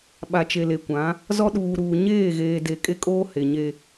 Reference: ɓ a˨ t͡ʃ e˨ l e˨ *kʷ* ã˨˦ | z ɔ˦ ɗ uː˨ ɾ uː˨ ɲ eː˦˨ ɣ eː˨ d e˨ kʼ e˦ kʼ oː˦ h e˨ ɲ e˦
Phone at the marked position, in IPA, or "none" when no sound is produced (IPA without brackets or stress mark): kʷ